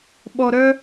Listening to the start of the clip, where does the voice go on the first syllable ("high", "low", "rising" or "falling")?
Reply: low